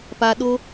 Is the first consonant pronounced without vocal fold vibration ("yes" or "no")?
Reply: yes